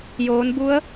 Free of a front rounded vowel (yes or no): yes